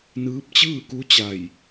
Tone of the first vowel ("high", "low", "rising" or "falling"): rising